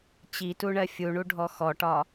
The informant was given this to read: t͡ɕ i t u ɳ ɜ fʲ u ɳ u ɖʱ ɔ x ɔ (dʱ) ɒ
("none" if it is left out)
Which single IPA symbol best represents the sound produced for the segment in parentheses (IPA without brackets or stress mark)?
ʈ